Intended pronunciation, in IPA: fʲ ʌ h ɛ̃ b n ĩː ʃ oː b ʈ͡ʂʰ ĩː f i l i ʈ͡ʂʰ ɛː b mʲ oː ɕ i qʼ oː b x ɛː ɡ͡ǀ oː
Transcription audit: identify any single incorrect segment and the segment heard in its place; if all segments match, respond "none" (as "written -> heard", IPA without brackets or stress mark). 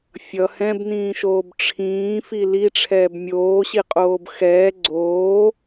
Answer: none